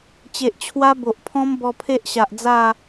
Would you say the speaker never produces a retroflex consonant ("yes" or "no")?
yes